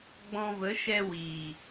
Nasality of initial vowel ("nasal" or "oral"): nasal